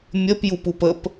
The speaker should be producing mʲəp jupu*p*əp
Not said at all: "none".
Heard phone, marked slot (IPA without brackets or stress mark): p